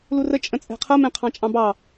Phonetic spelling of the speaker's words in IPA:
l u r ə t͡ʃʼ ə̃ t͡sʼ ɛ̤ qʰ ʌ m ɛ̃ qʰ ɑ̃ t͡ʃʼ ɑ̃ b ɑ

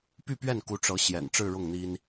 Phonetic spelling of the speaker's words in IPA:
p y˥˧ p ɥ ɛ˥˩ n k u˧˥ ʈ͡ʂ ɤ˧˥ ɕ j ɛ̰˨˩ n ʈ͡ʂ ɻ̩˥˧ ɻ ʊ˥˩ ŋ n̪ i˥ n

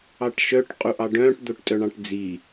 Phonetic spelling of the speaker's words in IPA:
ɑ ʈ ʃ œ ʈ qʼ u ʔ ɑ ɖ œ̃ː ʈ d̪ o ʈ tʼ œ ɳ ɑ̃ ʈ d͡z i

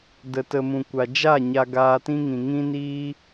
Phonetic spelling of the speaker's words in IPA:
d ə˨ t ə˨ m ũ˨ kʷ a˨ d͡ʒ a˦˨ ɲ a˧ ɡ aː˧ t ĩ˦ ŋ ĩ˨ ŋ ĩ˦ n iː˦

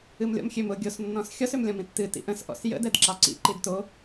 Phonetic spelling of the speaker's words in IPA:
ɨ m lʲ ɔ̰ m xʲ ø m ʊ ɡʲ o s nː ɔ̃ s xʲ ɔ s ø m lʲ ɔ̃ m ĩ tː ɨ t ḭ ʔ ə̃ s ʔ ɔ̰ s j ə̰ d ɛ d ǁ ɑ ǀ ḭ ǃ i d t o

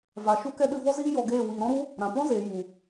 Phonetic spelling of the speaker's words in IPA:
v a˨ ʃ u˦ k ɛ˦ ɗ ɨ˧ v ɔ˦ z iː˦ j ɔ˧ ɡ eː˦˨ w iː˨ ɾ ɔ̃˦ ɾ u˦ | ɾ ã˨ p ɔ̃˦ z eː˨ j u˨

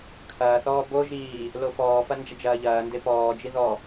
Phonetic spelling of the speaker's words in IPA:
kʰ ɐː θ ɔː b o ʒ iː | l o f ɔː f ɐ n d͡ʒ ɐ d͡ʒ ɐː ʎ ɐː n d e p ɔː d͡ʒ i ð ɔ

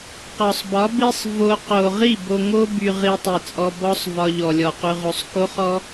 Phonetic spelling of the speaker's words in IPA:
q ɒ˨ sˤ b ɒ˨˦ b i˦ sˤ v o˧ q o˨ ʁ i˦˨ b o˧ ŋ o˦ b y˧ ʁ i˧ tˤ i˨ t͡sʼ ɔ˧ b ɔ˦ sˤ v ɒ˧ ʎ ɔ˨ lʲ ɔ˨ q y˧ ʁ o˧ sˤ k o˦ χ ɔ˦

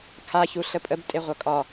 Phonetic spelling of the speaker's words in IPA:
kʰ a ç u ɬ ə pʼ ə b tʼ e ʁʷ ʌ kʼ ɒ

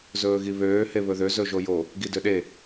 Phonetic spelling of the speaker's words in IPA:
z ɵː ɣ i β øː h e β ɵ ð ø z ɵ ʒ o j o | ɡ i d ø ɗ e

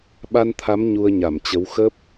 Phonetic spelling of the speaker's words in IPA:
ɓ a˧ n t̪ʰ a˨˦ m ɲ u˧ ə̯ ɲ a˧˩ m t͡ɕ ə˨˦ w x ə˦˥ p̚

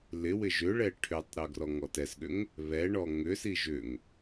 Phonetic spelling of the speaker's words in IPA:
l ɪ w ɪ ʒ ʏ ɭ ɛ ʈʰ ʏ tˤ ɾ ɵ ɡ r ɔ ŋ ɔ t ɛ s ɠ ʏ ŋ | β ɛ ɳ ɔ ŋ ʏ s i ʒ ʏ ŋ

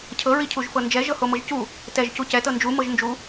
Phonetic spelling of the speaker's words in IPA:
cʰ ɤ ɹ i cʰ u ʒ f ɤ n d͡ʒ ɛ ʒ ɤ h o m ɤ ʒ c u | t ɛ ʒ c u c ɛ t ɤ n d͡ʒ u m ɤ ʒ n d͡ʒ u

